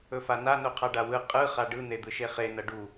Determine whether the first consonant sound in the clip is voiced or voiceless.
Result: voiceless